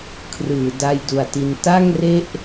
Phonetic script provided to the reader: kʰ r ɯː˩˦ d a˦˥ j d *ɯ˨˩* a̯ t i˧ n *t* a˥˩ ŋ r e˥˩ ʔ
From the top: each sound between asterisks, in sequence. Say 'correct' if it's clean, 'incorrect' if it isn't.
incorrect: u˨˩, correct

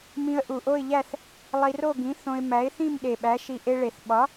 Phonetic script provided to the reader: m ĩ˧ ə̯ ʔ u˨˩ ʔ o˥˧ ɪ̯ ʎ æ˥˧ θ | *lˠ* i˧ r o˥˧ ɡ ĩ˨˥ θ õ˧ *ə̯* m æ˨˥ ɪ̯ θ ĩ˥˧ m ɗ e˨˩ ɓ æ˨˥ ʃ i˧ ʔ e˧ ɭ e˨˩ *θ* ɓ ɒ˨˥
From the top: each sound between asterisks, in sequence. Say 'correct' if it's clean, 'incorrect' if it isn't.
correct, incorrect: ɪ̯, correct

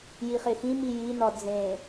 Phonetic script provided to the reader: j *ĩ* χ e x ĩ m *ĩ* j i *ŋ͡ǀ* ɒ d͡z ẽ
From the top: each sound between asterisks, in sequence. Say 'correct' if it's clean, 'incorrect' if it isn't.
incorrect: i, incorrect: i, incorrect: n

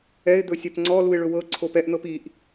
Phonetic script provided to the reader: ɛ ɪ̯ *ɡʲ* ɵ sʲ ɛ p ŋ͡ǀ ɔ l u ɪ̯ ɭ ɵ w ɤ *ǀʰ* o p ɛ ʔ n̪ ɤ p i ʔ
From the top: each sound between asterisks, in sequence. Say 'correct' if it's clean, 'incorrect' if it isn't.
incorrect: d̪, correct

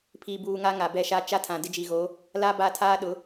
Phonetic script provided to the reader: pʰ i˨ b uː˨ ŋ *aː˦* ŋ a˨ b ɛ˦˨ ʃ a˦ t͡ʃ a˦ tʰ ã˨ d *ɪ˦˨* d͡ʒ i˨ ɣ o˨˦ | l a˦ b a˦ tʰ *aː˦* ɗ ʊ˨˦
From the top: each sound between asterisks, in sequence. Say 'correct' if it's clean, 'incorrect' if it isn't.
incorrect: a˦, incorrect: ɪ˦, correct

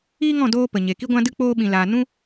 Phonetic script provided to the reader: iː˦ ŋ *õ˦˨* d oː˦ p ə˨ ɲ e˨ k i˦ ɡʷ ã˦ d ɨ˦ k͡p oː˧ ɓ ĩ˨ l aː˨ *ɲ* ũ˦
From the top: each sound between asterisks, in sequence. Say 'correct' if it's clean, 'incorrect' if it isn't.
incorrect: ɔ̃˦˨, incorrect: n

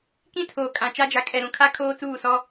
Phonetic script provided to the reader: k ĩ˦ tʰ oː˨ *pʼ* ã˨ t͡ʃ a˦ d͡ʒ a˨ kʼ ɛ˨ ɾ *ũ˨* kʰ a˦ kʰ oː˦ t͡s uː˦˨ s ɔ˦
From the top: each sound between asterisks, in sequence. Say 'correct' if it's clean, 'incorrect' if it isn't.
incorrect: kʼ, correct

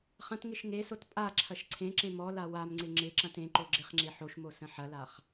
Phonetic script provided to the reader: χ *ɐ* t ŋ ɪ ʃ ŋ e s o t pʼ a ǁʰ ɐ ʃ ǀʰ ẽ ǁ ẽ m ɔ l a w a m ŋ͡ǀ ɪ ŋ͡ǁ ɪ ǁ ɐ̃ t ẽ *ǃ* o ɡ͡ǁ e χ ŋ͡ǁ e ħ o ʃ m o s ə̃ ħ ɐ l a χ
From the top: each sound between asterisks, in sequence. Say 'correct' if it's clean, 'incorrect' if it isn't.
incorrect: ɐ̃, correct

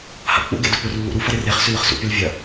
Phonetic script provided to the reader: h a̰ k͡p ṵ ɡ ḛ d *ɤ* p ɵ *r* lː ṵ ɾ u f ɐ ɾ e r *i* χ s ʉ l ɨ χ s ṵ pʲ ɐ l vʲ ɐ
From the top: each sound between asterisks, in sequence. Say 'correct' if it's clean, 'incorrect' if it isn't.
incorrect: ɵ, correct, incorrect: e

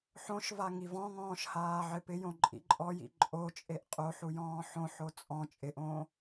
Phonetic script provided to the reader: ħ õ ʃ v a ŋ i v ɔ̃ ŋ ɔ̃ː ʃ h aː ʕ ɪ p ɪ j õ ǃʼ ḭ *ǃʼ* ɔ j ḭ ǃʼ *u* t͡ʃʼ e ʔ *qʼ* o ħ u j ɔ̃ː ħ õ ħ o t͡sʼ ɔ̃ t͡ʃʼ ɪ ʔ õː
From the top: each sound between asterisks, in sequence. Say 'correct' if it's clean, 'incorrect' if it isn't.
correct, incorrect: o, correct

